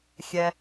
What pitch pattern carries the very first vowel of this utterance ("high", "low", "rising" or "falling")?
low